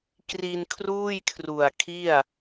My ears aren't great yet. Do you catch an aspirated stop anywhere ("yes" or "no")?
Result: yes